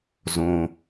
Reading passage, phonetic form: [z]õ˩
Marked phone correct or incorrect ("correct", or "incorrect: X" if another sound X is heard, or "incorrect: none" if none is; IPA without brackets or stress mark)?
correct